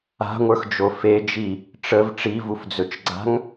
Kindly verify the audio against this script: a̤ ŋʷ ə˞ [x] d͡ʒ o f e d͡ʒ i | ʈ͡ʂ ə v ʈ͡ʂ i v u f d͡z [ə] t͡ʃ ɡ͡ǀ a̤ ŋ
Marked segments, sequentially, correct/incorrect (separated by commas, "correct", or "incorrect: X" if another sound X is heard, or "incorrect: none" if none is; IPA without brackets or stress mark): correct, incorrect: ɵ